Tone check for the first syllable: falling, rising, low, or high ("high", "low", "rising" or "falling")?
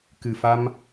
low